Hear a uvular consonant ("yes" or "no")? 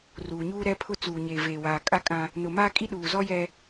no